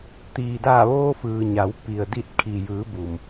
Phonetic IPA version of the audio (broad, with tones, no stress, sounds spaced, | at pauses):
t̪ iː˩ d aː˧˩ ʋ oː˧ f ɯː˩ ɲ a˩˧ w p i˩ ə̯ d i˧˩ t̚ kʰ i˩ j ɯː˩˧ b u˩ m